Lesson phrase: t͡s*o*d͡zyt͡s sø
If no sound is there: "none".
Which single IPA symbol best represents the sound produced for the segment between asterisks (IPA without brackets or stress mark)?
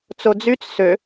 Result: o